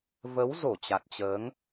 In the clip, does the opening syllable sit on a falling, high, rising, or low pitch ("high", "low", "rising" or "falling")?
rising